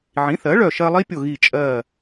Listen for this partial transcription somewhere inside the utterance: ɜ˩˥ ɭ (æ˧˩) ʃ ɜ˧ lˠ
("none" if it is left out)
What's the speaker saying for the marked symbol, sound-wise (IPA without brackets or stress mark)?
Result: œ˧˩